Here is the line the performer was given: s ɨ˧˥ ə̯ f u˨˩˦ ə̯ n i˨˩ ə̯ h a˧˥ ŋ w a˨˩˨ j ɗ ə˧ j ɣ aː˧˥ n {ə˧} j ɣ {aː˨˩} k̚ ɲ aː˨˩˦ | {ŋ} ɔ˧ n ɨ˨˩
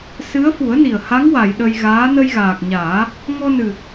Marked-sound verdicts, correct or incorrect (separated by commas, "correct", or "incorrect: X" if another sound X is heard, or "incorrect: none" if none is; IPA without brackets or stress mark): correct, correct, correct